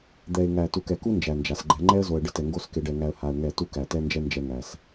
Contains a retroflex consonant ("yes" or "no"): yes